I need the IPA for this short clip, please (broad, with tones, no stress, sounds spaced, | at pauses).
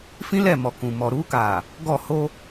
f ĩ˦ l ɛ˦˨ m ɔ˨ k ũ˨ m ɔ˨ ɾ uː˦ k aː˨ | ɡ ɔ˦˨ h o˦